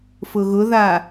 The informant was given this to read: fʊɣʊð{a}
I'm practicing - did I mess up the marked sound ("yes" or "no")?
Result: no